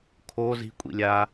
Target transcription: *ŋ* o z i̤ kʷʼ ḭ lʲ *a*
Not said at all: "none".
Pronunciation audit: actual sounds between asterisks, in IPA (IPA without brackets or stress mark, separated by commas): kʰ, a